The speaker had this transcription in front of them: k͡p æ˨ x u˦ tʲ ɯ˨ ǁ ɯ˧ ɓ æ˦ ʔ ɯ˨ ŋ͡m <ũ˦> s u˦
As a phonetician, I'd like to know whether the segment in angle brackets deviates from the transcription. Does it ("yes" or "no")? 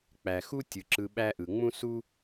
no